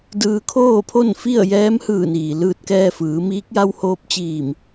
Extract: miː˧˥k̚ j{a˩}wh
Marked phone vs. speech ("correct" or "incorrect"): incorrect